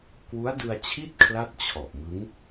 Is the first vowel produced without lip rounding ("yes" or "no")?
no